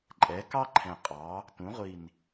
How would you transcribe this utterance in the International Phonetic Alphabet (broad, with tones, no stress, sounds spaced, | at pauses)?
ǃʼ ɛ˩˧ k ɑ˥ ǃʰ ɛ̃˨˩ qʼ ɑ˩˧ | t ũ˩˧ ʁʷ i˨˩ n